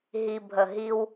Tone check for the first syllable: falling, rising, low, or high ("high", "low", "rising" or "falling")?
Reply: low